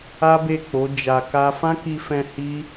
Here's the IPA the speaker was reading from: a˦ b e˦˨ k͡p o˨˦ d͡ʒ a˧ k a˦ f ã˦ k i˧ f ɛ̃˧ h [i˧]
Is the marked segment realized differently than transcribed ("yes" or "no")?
yes